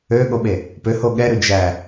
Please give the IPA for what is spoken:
ø ɠ o ɓ e | p ø h o ɠ ɛ ɾ ʉ d͡ʒ æ

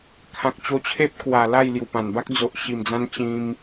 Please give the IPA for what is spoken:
kʰ ã˨ k̚ t͡ɕ o˧ t͡ɕʰ e˦ p̚ k w a˨˩ l a˥˧ j l j u˨˩ p ã˨˩ n b a˦ k̚ d͡z o˨ ʔ ɕ i˨˩ m d͡z ã˧ n t͡ɕ ĩ˧ m

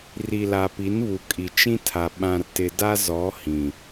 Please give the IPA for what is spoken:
r i˨ l a˨ p i˨˦ n β u˨ kʼ i˨ t͡ʃ ĩ˦ tʰ a˨ ɓ ã˨ r t ɪ˨ d a˦ z ɔ˨˦ h ĩ˨

